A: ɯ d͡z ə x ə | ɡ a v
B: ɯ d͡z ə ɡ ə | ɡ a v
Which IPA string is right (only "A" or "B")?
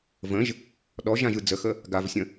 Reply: A